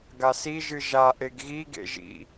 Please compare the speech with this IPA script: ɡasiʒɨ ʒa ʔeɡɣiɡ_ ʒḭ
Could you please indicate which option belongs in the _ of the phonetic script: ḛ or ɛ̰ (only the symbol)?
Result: ḛ